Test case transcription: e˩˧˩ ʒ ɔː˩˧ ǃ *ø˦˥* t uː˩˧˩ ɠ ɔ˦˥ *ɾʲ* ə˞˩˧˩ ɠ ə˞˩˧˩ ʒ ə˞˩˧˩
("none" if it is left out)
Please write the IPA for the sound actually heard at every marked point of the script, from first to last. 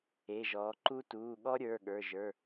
u˦˥, ɾʲ

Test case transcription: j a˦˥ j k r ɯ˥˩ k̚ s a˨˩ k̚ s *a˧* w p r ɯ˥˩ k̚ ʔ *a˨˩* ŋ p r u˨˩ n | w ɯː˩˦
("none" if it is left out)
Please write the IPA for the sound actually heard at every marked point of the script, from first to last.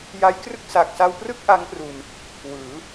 a˧, a˦˥

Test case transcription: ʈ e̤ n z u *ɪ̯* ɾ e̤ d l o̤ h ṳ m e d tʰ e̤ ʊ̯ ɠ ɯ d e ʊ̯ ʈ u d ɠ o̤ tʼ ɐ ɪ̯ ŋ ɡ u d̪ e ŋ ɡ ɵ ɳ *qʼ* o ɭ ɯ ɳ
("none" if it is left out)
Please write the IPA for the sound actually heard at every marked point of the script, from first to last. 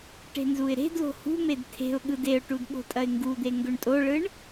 ɪ̯, tʼ

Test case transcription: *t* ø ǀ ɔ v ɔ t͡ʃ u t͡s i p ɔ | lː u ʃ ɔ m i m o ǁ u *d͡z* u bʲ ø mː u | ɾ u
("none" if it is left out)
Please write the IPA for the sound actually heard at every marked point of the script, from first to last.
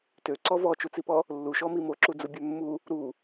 t, d͡z

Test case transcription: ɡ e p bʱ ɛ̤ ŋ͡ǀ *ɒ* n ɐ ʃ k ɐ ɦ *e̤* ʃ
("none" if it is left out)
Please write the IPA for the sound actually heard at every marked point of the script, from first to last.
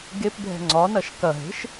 ɒ, e̤

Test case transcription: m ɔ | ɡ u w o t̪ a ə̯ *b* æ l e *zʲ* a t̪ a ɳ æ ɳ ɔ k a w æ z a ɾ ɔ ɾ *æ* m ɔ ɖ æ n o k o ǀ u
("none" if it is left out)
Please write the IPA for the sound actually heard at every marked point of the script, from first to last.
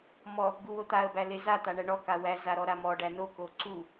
b, z, a

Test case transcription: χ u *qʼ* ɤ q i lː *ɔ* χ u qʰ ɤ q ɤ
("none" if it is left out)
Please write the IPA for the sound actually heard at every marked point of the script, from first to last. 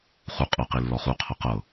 qʼ, ɔ

